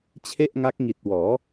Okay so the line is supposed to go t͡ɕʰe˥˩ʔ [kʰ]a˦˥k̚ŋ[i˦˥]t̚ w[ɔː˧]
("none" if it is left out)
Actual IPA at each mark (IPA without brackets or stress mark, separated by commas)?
ŋ, i˨˩, ɔː˩˦